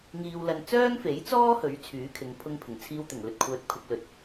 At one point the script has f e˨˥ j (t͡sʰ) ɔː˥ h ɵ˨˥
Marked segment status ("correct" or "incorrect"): incorrect